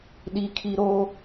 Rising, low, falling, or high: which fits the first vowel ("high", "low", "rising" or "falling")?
high